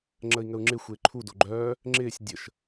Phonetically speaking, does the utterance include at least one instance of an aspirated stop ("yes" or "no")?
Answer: yes